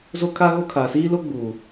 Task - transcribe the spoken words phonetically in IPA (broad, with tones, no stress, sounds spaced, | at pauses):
z o˦ kʰ a˦ ɣ o˦ kʰ aː˨ s iː˦ l o˦ ɡ͡b uː˨